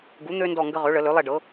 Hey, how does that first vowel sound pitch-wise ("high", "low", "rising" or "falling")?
rising